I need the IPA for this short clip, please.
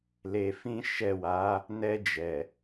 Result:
l e˧ f ĩ˦ ʃ ɛ˦˨ w a˨˦ | n ɛ˧ d͡ʒ ɛ˨

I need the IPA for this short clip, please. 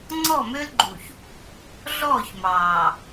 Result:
ŋ͡ǀ ɔ˦˨ m ø˦ l ɡ͡ǃ u˨ ç | ɮ ɔː˦˨ ç m ɑː˨

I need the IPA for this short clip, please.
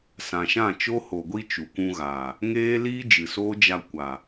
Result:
s ã˨ ʃ ã˦˨ t͡ʃ o˦ h o˨ ɡʷ i˧ t͡ʃ u˨ kʷ ũ˧ ɣ aː˨ | ŋ eː˦ l iː˦ d͡ʒ ɨ˨ s oː˦ d͡ʒ a˧ kʷ a˨

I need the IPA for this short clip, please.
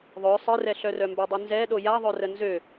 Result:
ðˤ œ sˤ ɪ r ɛ ɬ œ r œ m b ø dˤ y n z ɛ ɗ o j a ðˤ œ r ə n z ø

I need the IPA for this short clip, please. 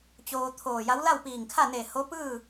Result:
t͡ɕ oː˧ t̪ʰ oː˧˩ j a˧˥ w l a˥˨ w p iː˧˩ ŋ kʰ a˥˨ n e˧˩ h o˧˥ p ɯː˥˨

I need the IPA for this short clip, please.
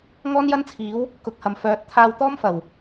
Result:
ŋ ɔː˥ n j ɐ˥ n t͡sʰ iː˨˥ w | k ʊ˨ k̚ h ɐ˨˩ m f œː˨˥ t̚ t̪ʰ aː˧ w t̪ ɔː˥ m f ɐ˨˩ w

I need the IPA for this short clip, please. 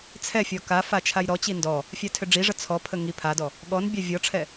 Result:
t͡sʰ ɛ fʲ ɔ k a f a t͡ʃʰ a j ɾ ɔ t͡ɕ i n d ɔ | fʲ a tʰ ʏ ɖ͡ʐ i ʐ ə t͡sʰ ɔ pʰ ə ŋ i pʰ a d ɔ | ɠ ɔ n bʲ a vʲ ɔ ʈ͡ʂʰ ɛ

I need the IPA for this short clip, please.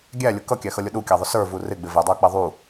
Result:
ɡʲ æ lʲ ʊ k ʌ kʲ æ x ʌ lʲ ʊ ɗ u kʲ æ ðˤ ʊ s ə˞ v u r ɪ ɡ͡b ɪ v ɪ dˤ ə˞ k͡p ɛ ðˤ u

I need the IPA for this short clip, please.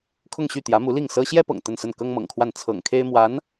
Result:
kʰ ʊ˥˧ ŋ ɕ y˥˩ t̪ j ä˧˥ m u˧˥ l i˥˩ ŋ s ɤ˥ ɕ j ɛ˥ p ɤ̰˨˩ ŋ t̪ ə˥˧ n s ə˥˩ n k ɤ˥ ŋ m ɤ̰˨˩ ŋ kʰ w a˥˩ n t͡sʰ ɤ̰˨˩ ŋ kʰ e˥ ɪ̯ m w a˧˥ n

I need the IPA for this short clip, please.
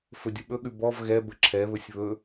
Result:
f ɵ dʲ ə ɓ ɵ ɠ ʉ b ɔ v ɣ ɛ b ə ǁʰ ɛ β ɵ sʲ β ɵ

